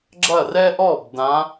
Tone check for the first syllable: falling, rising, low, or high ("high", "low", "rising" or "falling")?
falling